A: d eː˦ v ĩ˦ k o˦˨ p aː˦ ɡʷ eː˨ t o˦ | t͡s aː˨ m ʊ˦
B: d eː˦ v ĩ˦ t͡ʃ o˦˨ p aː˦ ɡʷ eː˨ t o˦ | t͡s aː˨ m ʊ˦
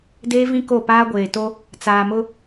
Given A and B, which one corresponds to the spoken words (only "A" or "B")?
A